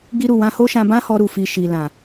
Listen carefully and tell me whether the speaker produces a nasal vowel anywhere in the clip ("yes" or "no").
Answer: yes